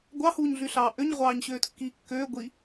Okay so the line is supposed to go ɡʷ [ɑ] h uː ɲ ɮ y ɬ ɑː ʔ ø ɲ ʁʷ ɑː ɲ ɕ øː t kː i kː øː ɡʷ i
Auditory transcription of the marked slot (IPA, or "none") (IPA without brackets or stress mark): ɑ